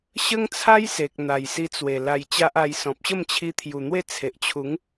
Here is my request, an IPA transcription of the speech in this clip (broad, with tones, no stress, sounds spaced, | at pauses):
ɕ ə˦ ŋ t͡sʰ a˦ j s e˨ k̚ n̪ a˨˩ j s i˧ t͡s w e˨˩ l a˧ j t͡ɕ a˦ ʔ a˧ j s ɔ̃˨ p̚ ɕ ə˥˧ m t͡ɕʰ i˧ t̪ʰ j u˨˩ n̪ w e˥˧ t͡sʰ e˨ ʔ t͡ɕʰ u˨˦ ŋ